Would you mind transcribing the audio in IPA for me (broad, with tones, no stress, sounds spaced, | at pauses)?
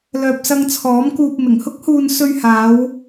l œː˨ p̚ s ɐ˧ ŋ t͡sʰ ɔː˨˥ m k uː˧ p̚ m ɪ˨˩ ŋ h ʊ˥ k̚ h uː˧ n s ɵ˧ ɥ h aː˨˧ w